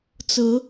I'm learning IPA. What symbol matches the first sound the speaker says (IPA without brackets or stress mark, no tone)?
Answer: t͡s